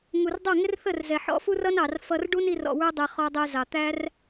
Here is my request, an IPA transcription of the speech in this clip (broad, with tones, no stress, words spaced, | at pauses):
ŋu˨rdˤʌ˦˨ ŋɪ˦rθə˦˨rzɛ˨ ħɔ̰˨˦fu˦rʌ˦nɑ˨r fʌ˧rɖu˦ni˧r ɔ̰˧wə˞˦dˤɛ˧ χɔ˧dˤɛ˧zɑ˨t̪æ˦r